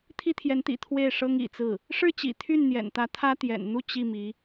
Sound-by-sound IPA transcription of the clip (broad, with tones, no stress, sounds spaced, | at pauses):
t̪ʰ i˥ t̪ʰ j ɛ˧˥ n t̪ ḭ˨˩ t̪ʰ w e˥˩ ɪ̯ ʂ ɤ˥ ŋ ḭ˨˩ t͡s ɹ̩˥˩ | ʂ ɻ̩˥˩ t͡ɕ ḭ˨˩ t̪ʰ y˥˩ n n̪ j ɛ̰˨˩ n t̪ ä˧˥ t̪ʰ ä˥ t̪ j ɛ̰˨˩ n n̪ u˥˧ t͡ɕ i˥˩ m i˧˥